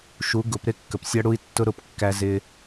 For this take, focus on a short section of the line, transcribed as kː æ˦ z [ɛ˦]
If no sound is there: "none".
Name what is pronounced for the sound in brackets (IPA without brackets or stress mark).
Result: ɪ˦